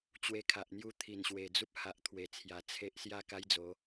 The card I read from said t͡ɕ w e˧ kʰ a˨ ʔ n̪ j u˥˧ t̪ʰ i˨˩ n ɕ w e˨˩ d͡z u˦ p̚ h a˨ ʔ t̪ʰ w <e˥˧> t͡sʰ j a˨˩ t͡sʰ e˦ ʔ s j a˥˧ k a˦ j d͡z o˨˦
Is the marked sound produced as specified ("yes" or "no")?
no